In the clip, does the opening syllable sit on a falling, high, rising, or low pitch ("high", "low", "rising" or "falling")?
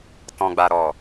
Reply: low